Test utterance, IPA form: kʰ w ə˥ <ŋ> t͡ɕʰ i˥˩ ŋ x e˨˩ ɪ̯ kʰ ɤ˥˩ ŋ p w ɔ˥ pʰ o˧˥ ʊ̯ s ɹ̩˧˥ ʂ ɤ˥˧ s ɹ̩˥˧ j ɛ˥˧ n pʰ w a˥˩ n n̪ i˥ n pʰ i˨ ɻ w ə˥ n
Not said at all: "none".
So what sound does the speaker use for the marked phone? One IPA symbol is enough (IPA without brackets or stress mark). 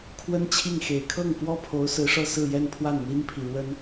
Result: n